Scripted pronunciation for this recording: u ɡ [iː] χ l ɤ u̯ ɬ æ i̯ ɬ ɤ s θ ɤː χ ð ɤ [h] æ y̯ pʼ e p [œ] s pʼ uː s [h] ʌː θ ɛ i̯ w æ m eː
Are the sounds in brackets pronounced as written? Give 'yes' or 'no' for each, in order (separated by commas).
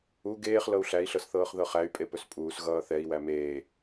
no, no, no, no